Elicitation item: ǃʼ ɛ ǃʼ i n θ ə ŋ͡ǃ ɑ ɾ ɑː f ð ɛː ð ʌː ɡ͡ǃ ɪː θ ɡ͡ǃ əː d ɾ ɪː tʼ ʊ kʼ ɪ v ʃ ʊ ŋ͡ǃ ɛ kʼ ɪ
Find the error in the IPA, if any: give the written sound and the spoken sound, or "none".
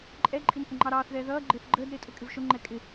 f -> θ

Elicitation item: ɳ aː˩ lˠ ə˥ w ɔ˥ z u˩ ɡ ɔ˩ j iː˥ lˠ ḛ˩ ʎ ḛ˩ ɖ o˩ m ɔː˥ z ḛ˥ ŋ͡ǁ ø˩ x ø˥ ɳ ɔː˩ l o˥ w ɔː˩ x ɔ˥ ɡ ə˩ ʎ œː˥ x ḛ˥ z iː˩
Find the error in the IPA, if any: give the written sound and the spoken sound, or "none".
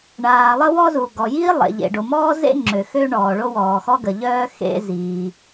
l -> ɭ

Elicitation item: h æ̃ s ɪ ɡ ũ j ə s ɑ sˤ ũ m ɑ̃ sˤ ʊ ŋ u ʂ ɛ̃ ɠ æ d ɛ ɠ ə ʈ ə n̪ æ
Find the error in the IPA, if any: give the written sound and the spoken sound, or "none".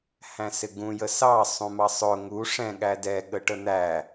ɑ̃ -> ɑ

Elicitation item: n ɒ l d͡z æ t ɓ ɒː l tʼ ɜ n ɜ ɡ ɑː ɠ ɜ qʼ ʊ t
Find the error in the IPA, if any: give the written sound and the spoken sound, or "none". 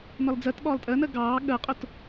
æ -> ɜ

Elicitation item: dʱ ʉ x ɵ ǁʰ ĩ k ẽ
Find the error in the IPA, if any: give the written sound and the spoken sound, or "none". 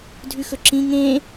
k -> ŋ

